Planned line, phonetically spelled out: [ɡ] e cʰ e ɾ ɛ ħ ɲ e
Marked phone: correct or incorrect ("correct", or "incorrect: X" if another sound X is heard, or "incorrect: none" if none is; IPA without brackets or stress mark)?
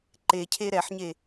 incorrect: ǃ